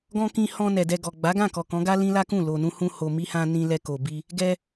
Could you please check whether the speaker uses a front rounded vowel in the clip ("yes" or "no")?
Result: no